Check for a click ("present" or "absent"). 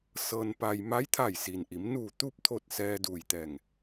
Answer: absent